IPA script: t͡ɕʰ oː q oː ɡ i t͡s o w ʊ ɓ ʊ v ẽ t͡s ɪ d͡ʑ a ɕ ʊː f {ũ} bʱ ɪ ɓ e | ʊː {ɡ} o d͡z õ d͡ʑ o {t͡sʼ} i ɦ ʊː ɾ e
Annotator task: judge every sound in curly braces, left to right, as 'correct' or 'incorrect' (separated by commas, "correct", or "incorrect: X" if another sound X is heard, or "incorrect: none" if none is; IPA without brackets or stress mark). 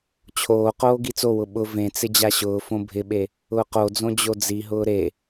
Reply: incorrect: õ, incorrect: q, incorrect: d͡z